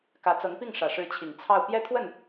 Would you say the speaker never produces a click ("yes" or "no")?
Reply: yes